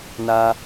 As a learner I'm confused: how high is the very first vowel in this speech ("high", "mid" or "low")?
low